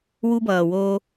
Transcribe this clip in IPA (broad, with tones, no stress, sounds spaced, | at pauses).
w u˧ b ʌː˨ w oː˧